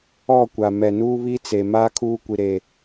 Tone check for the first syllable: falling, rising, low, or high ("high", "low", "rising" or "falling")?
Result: falling